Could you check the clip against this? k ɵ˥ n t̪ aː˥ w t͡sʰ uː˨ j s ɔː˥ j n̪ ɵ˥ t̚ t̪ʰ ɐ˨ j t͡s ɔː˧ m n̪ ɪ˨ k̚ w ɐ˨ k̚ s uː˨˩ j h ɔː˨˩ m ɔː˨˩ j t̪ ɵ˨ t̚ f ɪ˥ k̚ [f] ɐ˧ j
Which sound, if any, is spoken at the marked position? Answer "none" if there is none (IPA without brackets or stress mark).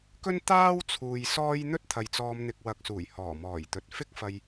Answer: f